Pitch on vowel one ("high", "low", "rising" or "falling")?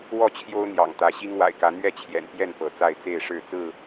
falling